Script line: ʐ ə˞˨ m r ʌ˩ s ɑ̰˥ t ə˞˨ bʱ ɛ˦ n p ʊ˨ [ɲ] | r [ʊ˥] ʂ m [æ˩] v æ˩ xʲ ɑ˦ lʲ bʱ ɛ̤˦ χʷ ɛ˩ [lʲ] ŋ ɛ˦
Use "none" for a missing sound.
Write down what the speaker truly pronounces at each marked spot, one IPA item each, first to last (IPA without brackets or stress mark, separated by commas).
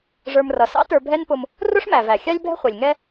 m, ʊ˥, æ˩, lʲ